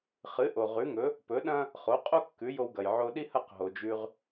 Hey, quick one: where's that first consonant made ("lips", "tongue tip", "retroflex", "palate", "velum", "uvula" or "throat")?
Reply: uvula